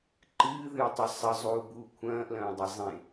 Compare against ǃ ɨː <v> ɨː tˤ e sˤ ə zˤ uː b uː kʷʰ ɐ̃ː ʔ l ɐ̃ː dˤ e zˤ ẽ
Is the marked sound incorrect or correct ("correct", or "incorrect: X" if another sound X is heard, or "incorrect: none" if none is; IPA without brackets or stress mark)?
incorrect: ð